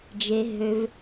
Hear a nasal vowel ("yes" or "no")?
no